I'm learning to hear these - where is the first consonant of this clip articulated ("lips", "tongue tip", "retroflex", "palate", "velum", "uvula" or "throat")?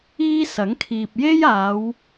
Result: tongue tip